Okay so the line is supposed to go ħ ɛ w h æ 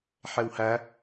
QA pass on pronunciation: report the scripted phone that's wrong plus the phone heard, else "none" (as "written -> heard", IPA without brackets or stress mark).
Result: none